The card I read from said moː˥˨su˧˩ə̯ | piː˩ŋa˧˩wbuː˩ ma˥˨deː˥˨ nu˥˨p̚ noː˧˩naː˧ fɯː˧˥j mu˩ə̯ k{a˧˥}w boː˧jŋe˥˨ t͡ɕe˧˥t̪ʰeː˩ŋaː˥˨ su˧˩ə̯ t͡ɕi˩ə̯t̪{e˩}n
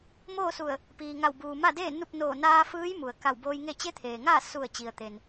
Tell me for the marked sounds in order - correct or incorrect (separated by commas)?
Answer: incorrect, correct